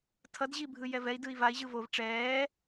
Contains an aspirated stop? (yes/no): yes